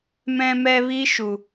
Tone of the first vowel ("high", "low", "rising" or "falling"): high